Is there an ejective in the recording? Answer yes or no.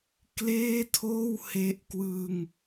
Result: no